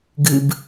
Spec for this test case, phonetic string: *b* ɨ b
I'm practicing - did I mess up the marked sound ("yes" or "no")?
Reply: yes